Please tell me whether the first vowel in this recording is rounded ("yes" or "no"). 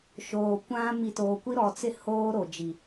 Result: yes